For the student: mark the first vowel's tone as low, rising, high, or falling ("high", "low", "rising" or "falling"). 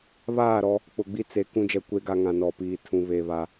falling